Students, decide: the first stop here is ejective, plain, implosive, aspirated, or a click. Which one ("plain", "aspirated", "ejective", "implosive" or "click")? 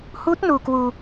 plain